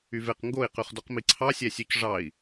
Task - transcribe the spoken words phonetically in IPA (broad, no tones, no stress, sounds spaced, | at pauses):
y v e q ŋ ɡ o i̯ q y χ d o q m i ǀʰ ɑ sʲ æ sʲ ø c ʐ ɑ i̯